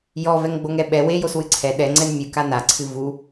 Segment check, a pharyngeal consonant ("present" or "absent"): absent